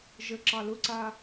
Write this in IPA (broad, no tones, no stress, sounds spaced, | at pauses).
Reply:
ʒ ə ǁ ɑ l ʊ ǀ a